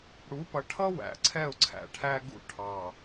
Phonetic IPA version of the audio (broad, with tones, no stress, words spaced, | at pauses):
ɽu˨˦pʌ˨ʈʰʌ˦ wæ̰˨ǀʰɛ˦˨ʊ̯ǀʰæ̰˨ ʈʰæ˦ɡṵ˦ʈʰɑ˨